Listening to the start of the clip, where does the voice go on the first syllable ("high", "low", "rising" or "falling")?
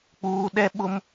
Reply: low